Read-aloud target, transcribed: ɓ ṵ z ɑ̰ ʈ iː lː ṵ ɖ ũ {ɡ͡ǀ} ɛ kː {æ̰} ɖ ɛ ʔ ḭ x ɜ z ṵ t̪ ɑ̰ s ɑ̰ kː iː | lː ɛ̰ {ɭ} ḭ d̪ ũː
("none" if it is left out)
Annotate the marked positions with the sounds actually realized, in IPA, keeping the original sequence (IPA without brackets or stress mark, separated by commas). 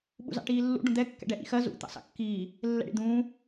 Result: d̪, ɛ̰, ɽ